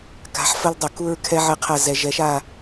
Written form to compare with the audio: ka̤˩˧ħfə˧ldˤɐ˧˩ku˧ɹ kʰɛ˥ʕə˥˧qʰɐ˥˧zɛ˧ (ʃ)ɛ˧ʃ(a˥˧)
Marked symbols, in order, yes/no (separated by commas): no, yes